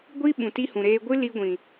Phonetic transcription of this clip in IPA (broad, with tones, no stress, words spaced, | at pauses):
ɡʷi˦ ɓũ˨ti˦hũ˨ɾeː˦ ɡʷɨ˦li˧ɡʷĩ˨